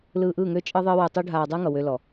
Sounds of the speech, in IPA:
lɯː˧ʔɯ˦˨ŋø˦ t͡ʃʼɯ˧ðˤɯː˧ wu˧tˤu˦ ɖʱaː˧dˤɯː˦ŋʌ˨ wø˧lɔ˨

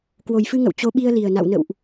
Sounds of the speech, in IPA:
kwo˨˩jfɨ˧ŋə̰˧˨w t͡ɕo˨˦ɓi˧ə̯li˨˩ə̯ na̰˧˨wnə̰˧˨wʔ

